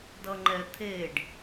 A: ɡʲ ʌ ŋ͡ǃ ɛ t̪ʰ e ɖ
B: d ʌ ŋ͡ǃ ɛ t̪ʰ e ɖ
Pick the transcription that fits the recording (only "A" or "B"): B